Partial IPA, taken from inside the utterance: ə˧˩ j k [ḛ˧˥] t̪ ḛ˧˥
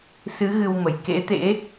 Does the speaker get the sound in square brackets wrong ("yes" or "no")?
no